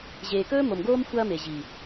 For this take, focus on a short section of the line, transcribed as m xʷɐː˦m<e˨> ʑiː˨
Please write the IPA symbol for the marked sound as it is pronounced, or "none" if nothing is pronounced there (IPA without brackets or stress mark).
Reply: e˨